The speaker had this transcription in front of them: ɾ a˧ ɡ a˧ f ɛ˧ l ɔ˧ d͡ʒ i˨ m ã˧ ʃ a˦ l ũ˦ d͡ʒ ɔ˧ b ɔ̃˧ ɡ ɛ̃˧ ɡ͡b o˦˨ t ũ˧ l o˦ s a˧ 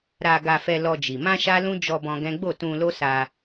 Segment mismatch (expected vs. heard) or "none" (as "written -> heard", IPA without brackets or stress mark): ɛ̃˧ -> ɛ̃˦